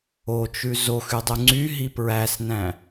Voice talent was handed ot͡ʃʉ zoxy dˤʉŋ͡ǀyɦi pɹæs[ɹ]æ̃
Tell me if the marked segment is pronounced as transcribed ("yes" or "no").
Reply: no